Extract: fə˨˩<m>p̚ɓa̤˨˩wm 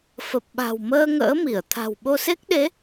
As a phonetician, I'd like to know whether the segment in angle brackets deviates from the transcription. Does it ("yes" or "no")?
yes